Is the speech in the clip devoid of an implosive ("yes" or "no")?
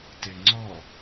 yes